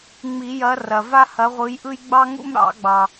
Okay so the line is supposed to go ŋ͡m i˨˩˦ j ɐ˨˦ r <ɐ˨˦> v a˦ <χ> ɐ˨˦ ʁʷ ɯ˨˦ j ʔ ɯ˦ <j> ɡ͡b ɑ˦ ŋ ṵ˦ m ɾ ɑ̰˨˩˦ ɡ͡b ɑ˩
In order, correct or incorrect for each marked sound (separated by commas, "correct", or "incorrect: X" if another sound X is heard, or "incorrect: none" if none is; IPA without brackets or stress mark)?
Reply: incorrect: ɐ˩, incorrect: h, correct